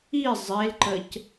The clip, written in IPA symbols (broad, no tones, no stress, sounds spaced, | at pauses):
i zˤ e l ǃ ə c